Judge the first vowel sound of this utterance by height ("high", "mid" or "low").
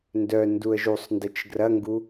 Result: mid